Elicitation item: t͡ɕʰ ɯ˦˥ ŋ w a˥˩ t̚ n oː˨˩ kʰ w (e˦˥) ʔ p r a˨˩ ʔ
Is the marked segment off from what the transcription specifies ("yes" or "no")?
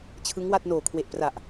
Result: yes